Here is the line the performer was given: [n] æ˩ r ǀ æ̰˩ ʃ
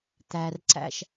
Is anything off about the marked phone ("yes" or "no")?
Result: yes